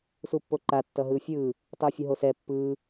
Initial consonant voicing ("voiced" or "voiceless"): voiceless